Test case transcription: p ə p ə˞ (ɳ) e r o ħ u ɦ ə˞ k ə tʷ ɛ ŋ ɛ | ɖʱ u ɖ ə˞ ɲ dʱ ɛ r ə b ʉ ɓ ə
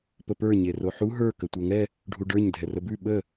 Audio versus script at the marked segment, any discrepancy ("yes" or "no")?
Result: yes